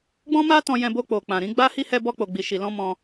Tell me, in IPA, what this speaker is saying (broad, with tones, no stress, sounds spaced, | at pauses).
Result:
ɡ͡b ɔ̃˦ m a˦ t ɔ̃˧ j ɛ̃˧ b o˧ k͡p o˨ k͡p ã˨ ɾ ĩ˧ ɡ͡b a˦ h i˦ h ɛ˦ b ɔ˦ k͡p o˧ ɡ͡b i˧ ʃ i˧ l ɔ̃˦ m ɔ̃˧